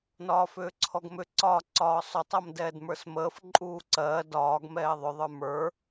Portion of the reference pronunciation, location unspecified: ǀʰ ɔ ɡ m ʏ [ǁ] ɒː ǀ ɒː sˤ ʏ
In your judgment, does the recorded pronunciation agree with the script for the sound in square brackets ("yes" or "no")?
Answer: no